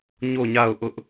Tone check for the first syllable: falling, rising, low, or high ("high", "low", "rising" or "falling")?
falling